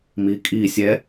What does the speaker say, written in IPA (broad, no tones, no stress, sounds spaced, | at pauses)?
m i kʼ i sʲ ɛ